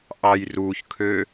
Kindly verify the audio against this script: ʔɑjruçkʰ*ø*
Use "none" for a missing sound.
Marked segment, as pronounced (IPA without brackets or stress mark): ø